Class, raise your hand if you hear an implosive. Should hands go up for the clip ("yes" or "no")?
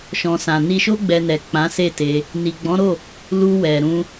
no